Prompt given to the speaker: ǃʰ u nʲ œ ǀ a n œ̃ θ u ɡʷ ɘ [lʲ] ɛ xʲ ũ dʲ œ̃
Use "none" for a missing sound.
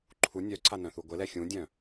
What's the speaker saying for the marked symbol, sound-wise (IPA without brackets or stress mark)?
l